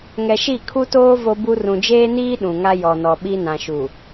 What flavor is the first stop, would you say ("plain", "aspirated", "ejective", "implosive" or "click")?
aspirated